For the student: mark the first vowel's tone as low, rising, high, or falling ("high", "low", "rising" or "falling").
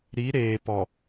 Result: rising